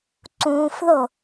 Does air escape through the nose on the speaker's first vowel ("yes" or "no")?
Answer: yes